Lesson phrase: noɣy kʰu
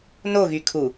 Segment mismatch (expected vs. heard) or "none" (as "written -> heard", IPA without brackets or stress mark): none